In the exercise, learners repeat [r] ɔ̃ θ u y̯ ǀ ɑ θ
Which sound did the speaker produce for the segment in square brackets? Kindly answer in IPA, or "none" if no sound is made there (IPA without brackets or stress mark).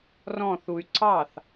r